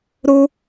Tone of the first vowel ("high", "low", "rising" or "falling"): high